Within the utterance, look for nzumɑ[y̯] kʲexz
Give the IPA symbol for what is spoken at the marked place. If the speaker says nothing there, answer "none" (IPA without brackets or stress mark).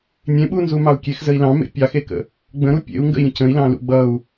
u̯